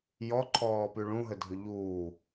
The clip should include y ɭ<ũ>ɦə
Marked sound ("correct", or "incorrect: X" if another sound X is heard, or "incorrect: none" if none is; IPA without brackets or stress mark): correct